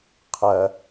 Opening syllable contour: low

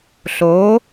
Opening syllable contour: rising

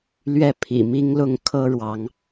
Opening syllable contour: falling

